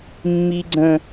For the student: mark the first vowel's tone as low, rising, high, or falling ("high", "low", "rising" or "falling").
high